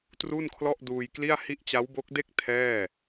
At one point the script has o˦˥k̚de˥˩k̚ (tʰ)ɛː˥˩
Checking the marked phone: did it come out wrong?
no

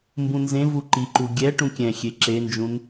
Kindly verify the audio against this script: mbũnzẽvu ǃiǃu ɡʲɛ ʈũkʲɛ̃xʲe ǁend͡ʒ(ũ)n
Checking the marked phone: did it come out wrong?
no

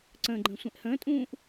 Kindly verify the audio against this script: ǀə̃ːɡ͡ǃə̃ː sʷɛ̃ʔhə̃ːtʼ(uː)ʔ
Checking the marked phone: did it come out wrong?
yes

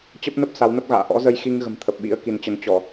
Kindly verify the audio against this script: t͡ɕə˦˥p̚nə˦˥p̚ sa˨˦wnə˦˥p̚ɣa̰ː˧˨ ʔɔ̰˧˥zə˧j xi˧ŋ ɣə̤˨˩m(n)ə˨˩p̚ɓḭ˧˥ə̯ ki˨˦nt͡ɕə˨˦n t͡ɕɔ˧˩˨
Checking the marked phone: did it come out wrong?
yes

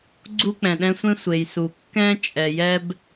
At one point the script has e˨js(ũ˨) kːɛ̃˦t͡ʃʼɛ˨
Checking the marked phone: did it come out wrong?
yes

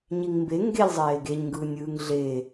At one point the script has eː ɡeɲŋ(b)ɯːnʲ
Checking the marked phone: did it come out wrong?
yes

